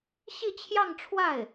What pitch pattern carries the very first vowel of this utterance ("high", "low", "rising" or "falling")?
falling